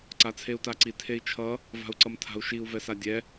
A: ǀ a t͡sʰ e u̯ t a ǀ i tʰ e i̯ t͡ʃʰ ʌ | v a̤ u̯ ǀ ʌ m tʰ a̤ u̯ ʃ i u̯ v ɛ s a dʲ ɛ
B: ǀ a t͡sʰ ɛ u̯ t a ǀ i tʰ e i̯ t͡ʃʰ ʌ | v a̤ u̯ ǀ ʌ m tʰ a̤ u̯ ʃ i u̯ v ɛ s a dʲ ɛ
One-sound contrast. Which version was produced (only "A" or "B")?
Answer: A